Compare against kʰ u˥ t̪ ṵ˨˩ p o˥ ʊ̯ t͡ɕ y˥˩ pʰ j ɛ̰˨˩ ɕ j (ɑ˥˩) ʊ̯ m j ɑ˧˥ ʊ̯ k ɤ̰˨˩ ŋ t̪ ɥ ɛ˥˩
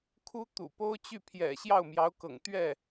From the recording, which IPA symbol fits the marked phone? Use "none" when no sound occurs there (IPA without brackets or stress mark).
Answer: ɑ˥˩